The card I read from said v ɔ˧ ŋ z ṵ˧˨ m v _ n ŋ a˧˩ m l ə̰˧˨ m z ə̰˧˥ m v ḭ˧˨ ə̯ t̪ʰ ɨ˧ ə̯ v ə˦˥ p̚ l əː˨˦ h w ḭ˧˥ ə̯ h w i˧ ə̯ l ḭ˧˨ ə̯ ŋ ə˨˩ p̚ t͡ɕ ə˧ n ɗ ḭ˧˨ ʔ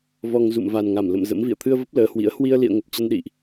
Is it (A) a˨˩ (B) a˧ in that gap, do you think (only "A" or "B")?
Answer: A